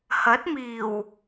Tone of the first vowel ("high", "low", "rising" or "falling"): rising